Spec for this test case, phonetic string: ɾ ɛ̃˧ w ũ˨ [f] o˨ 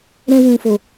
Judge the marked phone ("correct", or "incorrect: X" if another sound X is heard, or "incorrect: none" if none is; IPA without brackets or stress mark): correct